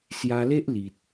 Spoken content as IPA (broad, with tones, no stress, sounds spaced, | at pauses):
s j a˧ l e˦ ʔ l i˨ t̚